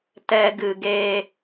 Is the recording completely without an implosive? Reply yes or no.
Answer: yes